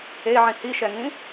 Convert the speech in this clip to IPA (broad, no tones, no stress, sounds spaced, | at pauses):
e ʕ ĩ h i ʃ ɛ ŋ ĩ